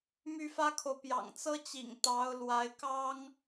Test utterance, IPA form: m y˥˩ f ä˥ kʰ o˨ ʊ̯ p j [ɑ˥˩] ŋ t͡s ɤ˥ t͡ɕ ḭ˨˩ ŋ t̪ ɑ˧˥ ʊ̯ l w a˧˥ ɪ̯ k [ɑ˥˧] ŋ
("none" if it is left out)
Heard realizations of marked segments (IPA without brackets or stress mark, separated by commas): ɑ̰˨˩, ɑ˥